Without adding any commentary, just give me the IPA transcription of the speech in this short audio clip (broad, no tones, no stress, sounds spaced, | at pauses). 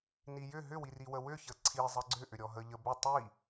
n i j ʏ ɦ ʏ w i r i w ə w ʏ ç ə ǀʰ i zˤ ə ɡ͡ǀ ʏ ʔ ʏ ɾʲ ɔ ɦ ə ʎ ə b ʏ tˤ i